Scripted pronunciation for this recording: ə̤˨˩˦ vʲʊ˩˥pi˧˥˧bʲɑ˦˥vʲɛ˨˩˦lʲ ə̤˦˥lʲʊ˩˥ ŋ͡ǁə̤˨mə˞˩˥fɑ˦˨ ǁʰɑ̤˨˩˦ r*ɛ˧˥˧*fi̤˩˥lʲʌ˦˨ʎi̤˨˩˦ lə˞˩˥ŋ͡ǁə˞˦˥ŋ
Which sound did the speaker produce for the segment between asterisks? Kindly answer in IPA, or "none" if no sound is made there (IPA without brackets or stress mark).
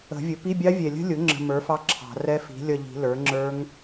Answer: ɛ˦˥